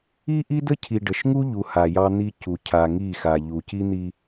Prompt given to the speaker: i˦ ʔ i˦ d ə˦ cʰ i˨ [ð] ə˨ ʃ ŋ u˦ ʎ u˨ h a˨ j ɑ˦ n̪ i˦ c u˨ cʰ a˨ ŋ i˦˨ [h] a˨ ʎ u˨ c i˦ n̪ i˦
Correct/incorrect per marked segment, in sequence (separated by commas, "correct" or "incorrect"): incorrect, incorrect